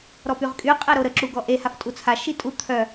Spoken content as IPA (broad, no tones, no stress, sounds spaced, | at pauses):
ɾ ɔ p y ʁ kʼ y qʼ ɛ ɾ o ɾ ə ǁ u ɡ ɔ ʔ e h a f tʼ u t͡sʰ a ʃ i tʼ u t̪ʰ œ